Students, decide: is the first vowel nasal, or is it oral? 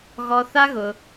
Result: oral